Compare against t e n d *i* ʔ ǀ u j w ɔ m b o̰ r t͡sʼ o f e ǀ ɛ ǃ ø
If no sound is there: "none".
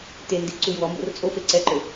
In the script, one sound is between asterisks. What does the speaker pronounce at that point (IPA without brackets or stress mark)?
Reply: i